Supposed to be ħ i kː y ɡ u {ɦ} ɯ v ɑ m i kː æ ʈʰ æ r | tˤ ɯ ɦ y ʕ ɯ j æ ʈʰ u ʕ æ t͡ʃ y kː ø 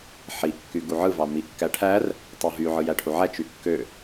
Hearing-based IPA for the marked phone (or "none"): ʕ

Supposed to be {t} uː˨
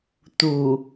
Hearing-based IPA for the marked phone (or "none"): t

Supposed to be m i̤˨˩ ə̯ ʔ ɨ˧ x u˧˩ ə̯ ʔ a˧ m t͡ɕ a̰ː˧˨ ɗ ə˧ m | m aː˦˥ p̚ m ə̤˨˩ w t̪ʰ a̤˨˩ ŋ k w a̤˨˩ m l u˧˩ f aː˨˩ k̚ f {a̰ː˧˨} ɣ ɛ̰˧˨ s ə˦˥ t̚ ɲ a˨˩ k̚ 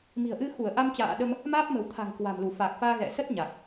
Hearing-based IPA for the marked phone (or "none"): aː˧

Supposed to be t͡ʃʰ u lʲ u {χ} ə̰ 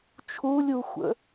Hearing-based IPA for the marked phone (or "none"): xʷ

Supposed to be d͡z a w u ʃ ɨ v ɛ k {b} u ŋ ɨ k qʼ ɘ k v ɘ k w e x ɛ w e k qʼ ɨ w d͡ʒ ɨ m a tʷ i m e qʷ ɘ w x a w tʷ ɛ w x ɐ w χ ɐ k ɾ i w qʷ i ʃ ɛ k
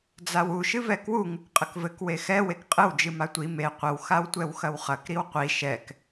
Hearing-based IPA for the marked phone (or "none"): w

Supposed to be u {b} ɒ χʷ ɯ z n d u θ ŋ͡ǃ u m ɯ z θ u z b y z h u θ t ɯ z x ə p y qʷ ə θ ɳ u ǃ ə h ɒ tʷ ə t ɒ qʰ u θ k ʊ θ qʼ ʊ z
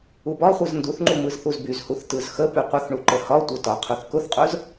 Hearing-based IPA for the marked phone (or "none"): b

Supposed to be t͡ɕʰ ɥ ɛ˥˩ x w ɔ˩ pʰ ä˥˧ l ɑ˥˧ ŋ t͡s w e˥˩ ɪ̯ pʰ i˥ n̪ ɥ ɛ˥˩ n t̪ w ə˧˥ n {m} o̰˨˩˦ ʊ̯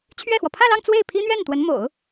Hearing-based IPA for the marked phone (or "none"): m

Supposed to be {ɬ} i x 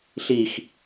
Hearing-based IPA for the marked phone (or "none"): ɬ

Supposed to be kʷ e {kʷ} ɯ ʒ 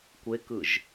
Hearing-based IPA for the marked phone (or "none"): k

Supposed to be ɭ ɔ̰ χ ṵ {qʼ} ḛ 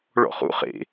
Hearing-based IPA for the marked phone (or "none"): χ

